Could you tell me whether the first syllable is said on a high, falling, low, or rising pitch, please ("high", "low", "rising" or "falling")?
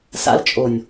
high